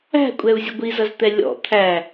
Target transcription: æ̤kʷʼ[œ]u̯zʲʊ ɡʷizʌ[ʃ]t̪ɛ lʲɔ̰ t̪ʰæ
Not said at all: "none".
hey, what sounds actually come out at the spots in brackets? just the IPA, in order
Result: ɛ, z

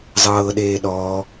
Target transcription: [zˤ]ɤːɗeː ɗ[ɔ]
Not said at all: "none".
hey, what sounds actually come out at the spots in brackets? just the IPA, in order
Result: zˤ, ɔː

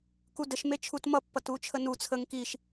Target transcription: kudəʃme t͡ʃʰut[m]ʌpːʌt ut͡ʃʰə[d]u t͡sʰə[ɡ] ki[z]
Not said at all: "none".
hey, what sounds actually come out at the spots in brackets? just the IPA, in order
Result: m, n, ŋ, ʃ

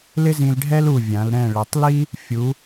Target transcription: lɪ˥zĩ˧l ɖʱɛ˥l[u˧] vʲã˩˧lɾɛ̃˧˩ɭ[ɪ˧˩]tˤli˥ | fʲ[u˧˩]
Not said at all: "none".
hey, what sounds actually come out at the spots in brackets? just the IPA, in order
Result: u˧˩, ɪ˩˧, u˩˧

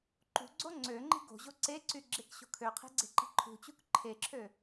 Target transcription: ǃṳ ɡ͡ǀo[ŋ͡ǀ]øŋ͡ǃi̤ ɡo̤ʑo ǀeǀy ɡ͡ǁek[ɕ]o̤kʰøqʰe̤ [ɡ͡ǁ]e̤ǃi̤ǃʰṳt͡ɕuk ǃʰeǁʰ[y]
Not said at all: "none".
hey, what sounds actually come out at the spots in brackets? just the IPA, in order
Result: ŋ͡ǀ, ɕ, ɡ͡ǀ, ø

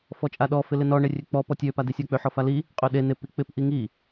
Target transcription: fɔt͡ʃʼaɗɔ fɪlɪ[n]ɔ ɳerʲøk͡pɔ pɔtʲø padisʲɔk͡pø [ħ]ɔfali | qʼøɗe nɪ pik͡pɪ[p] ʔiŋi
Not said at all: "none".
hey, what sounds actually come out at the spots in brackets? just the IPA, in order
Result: n, ħ, p

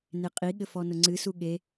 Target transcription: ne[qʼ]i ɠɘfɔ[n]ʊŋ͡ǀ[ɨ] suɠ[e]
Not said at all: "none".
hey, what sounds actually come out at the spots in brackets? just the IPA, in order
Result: qʼ, n, ɨ, e

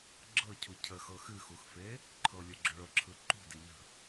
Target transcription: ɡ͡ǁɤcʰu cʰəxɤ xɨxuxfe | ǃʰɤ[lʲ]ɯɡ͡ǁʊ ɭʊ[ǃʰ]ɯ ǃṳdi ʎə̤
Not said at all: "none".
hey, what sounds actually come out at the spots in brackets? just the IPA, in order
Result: lʲ, ǁʰ

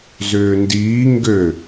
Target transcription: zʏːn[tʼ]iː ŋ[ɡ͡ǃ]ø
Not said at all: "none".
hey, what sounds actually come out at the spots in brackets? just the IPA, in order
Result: d, ɡ

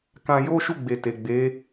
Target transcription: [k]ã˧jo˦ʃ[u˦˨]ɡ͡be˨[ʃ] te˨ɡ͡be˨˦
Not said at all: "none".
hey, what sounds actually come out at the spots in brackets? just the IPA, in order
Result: k, u˦˨, none

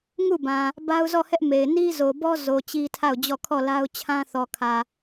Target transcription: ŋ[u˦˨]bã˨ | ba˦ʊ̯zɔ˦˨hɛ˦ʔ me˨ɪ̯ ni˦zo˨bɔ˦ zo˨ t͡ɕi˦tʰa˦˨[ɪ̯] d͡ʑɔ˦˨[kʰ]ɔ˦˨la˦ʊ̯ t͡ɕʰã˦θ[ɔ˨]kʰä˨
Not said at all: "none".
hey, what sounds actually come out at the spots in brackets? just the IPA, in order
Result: u˦˨, ʊ̯, kʰ, ɔ˨

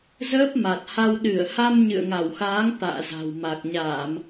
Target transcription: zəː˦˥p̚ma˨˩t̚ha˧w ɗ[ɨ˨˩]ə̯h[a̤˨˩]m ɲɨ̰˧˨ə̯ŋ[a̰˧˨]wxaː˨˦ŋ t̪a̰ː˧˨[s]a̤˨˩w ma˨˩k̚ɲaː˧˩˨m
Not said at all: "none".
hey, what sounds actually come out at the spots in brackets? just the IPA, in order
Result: ɨ˧˩, a˧, a˧˩, z

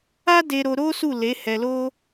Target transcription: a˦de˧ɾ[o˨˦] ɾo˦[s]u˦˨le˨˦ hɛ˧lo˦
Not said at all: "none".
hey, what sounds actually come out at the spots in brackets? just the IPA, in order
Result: o˧, s

